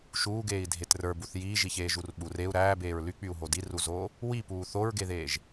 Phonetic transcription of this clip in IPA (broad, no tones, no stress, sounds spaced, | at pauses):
ʃ uː ɡ eː i̯ dʱ e t r ə˞ b u θ j iː ʒ i ç eː ʒ u r ɓ u r e u̯ ɾ æː b eː ɹ l y k͡p y u̯ ɦ o d i r u z oː | w i p uː θ o ɹ ɡ e ð eː ʒ